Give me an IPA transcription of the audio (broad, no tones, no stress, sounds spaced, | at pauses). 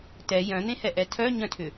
t ɛ j œ̃ n̪ ẽ h ɛ ʔ ɛ tʰ œ ɲ œ̃ tʰ ʏ